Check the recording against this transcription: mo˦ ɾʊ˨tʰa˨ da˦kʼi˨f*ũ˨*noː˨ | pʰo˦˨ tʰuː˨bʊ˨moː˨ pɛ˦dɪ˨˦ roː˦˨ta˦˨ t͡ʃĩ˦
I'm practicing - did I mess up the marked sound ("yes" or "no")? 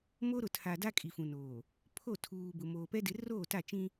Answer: no